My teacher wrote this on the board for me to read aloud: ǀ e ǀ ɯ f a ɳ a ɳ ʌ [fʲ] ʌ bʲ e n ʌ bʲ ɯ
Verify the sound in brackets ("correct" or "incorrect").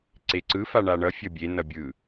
correct